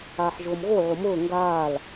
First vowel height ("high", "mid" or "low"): low